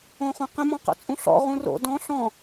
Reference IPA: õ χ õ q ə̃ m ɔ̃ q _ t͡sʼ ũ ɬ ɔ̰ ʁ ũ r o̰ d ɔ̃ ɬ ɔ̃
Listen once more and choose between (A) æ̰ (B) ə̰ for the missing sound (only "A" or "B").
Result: B